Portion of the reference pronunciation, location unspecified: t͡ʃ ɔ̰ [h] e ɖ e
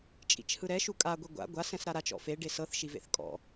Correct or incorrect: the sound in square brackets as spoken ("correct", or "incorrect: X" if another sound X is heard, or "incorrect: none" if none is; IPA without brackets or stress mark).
incorrect: f